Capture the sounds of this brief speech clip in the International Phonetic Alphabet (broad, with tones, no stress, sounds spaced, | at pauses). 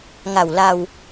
ŋ a˨˩ w l a˧ w